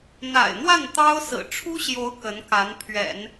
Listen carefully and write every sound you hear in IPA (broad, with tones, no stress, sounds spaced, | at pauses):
n̪ a̰˨˩ ɪ̯ n̪ w a˥˩ n t̪ ɑ˥ ʊ̯ s ɹ̩˨˩ ʈ͡ʂʰ u˥ ɕ j o˧˥ ʊ̯ k ə˧˥ n k a˧˥ n pʰ ɥ ɛ̰˨˩˦ n